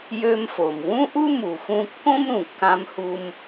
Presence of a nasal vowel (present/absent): present